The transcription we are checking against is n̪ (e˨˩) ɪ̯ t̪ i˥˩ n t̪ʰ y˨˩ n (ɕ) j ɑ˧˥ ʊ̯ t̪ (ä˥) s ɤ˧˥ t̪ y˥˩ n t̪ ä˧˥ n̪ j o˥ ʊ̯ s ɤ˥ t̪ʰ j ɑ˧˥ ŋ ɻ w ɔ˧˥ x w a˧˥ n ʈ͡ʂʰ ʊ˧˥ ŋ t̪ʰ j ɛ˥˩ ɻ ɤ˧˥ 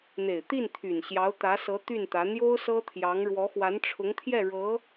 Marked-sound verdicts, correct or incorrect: correct, correct, incorrect

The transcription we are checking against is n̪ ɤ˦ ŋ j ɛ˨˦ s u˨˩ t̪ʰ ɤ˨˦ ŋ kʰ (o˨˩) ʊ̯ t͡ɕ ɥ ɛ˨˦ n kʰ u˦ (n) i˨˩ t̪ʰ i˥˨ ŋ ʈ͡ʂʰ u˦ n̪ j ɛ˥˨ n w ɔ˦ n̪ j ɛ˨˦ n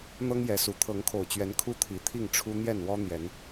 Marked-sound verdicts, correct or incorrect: correct, incorrect

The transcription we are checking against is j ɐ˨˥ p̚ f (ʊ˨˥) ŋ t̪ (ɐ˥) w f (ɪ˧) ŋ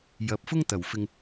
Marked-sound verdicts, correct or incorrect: incorrect, incorrect, correct

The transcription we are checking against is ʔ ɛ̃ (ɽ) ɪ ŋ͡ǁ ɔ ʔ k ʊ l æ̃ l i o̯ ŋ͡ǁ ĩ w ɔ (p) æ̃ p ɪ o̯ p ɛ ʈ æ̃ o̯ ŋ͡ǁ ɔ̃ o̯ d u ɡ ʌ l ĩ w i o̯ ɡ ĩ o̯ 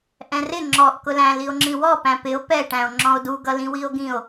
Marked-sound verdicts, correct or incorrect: incorrect, correct

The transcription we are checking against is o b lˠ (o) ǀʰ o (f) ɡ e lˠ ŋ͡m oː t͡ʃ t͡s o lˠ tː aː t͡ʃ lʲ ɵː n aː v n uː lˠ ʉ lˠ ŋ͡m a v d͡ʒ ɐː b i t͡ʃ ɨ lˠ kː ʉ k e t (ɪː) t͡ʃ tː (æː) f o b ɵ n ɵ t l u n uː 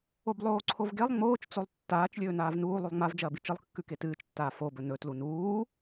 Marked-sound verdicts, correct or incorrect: incorrect, incorrect, incorrect, incorrect

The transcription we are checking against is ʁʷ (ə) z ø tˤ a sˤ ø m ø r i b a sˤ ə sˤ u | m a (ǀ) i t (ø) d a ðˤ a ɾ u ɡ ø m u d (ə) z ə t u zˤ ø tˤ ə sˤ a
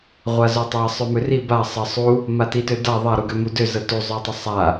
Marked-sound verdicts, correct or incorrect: incorrect, incorrect, correct, incorrect

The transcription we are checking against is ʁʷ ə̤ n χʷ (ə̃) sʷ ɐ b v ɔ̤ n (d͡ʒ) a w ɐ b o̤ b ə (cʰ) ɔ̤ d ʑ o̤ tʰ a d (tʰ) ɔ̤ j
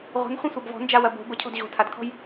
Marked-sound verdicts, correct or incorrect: correct, correct, correct, incorrect

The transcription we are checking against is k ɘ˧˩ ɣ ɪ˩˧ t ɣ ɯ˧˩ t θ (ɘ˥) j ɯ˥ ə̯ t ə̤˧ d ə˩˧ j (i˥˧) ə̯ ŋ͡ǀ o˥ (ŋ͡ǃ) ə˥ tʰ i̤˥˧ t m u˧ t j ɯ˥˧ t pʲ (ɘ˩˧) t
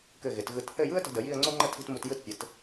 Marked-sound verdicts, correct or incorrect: incorrect, correct, correct, correct

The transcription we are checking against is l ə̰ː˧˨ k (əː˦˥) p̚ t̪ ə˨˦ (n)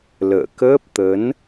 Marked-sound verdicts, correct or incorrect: correct, correct

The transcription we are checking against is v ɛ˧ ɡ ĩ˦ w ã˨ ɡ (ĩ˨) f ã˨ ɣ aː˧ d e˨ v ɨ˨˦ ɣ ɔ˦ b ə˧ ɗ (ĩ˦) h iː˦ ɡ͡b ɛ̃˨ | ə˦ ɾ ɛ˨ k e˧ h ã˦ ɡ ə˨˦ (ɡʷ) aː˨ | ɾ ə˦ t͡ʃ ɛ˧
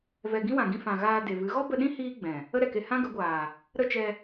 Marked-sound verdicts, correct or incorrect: incorrect, correct, correct

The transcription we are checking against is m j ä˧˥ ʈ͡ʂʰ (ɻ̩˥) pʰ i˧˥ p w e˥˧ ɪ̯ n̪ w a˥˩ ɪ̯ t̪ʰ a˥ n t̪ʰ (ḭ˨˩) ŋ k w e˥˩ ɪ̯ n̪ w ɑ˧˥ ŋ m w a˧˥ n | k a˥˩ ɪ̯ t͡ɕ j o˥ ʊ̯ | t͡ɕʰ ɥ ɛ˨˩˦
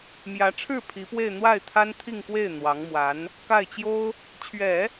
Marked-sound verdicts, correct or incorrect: incorrect, incorrect

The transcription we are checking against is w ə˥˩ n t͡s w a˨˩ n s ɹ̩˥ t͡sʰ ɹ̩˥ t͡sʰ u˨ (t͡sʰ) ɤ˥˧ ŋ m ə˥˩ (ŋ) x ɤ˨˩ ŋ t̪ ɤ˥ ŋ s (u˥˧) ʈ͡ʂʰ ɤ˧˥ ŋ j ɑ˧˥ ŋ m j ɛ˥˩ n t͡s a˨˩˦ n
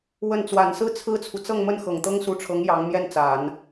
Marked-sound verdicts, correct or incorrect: incorrect, incorrect, incorrect

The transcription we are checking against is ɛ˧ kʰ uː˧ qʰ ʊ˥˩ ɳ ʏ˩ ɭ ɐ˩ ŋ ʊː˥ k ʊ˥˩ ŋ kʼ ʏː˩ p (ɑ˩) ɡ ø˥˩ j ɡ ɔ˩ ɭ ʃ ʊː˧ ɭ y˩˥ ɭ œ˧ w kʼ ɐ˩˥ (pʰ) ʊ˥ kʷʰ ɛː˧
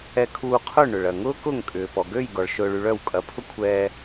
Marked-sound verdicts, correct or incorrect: incorrect, correct

